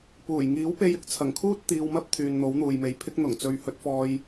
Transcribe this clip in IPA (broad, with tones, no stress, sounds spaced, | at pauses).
p uː˨˩ j ŋ iː˨˥ w p e˧ j ɪ˧ k̚ t͡sʰ ɐ˨˩ ŋ kʰ uː˥ t̚ t̪ iː˧ w m ɐ˥ p̚ t̪ʰ yː˨ n n̪ o˨˥ w n̪ uː˨ j m e˨˧ j pʰ ɪ˥ k̚ n̪ ʊ˨˩ ŋ t͡s ɵ˨˧ ɥ h ɵ˨˥ t̚ f ɔː˧ j